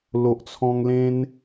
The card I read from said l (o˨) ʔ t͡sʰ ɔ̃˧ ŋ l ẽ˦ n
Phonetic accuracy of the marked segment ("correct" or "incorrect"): correct